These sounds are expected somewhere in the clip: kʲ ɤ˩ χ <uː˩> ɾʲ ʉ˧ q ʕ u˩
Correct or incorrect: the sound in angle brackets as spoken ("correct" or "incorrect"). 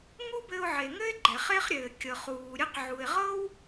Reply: correct